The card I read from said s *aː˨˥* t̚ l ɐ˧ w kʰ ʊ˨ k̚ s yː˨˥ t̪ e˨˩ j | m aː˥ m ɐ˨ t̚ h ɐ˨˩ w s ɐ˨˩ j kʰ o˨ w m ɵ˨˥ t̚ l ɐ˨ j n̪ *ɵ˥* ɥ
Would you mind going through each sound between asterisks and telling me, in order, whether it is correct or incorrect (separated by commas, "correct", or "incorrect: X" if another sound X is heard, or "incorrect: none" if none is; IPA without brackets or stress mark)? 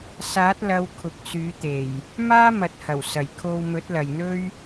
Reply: correct, correct